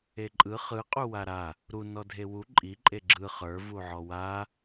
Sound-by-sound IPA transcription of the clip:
e ǃʼ ɯ χ ɯ qʼ u w a ɾ a | ɾ u n ɔ dʱ e w u ǃʼ i ǃʼ e ɡ͡ǁ ɯ χ ə˞ v u ʕ ɔ w a

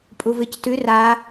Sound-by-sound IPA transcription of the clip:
pʼ u v ɨ c t ʉ r a

